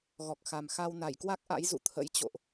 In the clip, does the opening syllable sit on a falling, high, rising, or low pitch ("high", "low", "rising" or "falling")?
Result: low